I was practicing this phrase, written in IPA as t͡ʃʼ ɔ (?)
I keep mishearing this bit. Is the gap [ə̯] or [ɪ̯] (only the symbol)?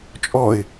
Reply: ɪ̯